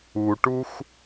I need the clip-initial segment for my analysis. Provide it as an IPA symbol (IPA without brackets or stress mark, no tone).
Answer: u